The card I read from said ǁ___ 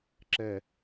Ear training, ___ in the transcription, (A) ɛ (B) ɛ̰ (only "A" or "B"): A